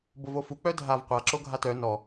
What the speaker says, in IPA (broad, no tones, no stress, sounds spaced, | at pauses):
b o v o f u k͡p œ dʱ a v qʷ a ǁ o ɡʱ a t œ n ɔ